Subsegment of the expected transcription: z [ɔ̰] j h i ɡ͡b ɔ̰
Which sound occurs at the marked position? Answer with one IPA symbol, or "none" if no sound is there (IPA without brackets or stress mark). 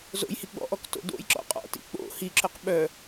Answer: o̰